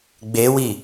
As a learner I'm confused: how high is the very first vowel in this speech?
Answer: mid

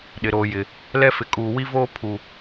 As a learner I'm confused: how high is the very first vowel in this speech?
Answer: high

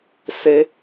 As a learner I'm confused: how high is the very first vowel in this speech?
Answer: mid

